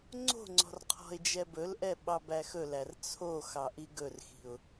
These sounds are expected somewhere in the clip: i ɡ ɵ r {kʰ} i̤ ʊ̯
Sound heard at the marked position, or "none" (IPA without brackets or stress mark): x